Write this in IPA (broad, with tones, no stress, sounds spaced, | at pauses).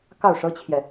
k ɑ˥˩ ʊ̯ ʂ ɤ˥ t͡ɕʰ j ɛ˨